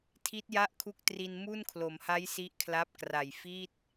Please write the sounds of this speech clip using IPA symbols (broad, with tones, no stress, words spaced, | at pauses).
tʰi˦˥t̚ja˥˩ʔkʰu˦˥k̚ tri˧n mu˥˩nkʰlo˩˦mha˦˥j si˦˥ʔkʰla˦˥p̚kra˨˩j fi˥˩t̚